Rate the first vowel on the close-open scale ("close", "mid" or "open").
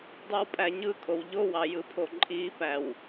close